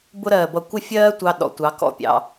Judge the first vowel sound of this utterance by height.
high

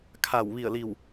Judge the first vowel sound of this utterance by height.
low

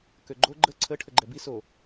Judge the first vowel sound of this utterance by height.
mid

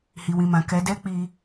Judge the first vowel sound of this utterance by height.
high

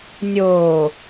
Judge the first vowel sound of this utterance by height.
mid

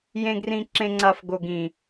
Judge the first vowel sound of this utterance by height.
mid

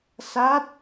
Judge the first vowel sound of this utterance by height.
low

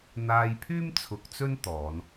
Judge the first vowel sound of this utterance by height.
low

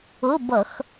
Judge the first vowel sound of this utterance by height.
high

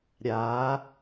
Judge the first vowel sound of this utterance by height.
low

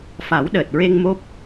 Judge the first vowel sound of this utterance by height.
low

